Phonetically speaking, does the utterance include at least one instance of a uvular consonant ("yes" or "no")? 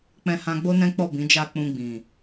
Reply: no